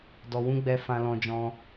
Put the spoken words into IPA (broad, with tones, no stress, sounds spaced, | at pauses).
d ɔ˧ w ũ˦ ɡ͡b ɛ˦ f ã˧ l ɔ̃˧ d͡ʒ ɔ̃˧